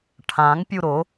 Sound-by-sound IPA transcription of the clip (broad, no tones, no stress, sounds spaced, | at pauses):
ʈʰ ã ŋ pʲ u ɾ o